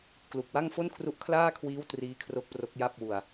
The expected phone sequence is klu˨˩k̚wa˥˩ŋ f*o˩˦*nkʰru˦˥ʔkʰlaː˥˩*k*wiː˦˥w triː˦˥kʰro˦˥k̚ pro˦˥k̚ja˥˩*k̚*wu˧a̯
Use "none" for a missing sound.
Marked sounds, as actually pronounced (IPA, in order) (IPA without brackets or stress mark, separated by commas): o˥˩, kʰ, p̚